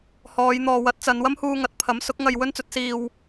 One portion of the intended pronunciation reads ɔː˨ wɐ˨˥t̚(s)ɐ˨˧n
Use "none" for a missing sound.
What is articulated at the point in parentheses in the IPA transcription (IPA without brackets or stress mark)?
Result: t͡s